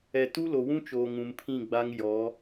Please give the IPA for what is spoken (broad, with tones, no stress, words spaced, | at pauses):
ɛ˨ tu˦lo˨wũ˦t͡ʃoː˨ ŋũ˨mpʰĩ˦˨ ɡ͡ba˦ŋ jɔ˨˦